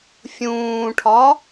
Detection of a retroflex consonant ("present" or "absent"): present